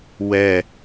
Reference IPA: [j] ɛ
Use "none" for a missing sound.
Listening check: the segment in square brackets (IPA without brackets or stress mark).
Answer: w